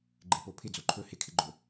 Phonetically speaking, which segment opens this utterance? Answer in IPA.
ɡ͡ǃ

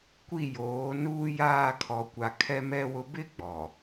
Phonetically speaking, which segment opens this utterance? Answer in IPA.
kʷ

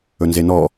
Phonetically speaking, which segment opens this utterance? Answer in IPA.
ɵ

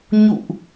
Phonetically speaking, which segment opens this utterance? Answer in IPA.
ɲ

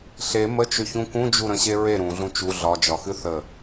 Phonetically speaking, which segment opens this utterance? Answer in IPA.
ɬ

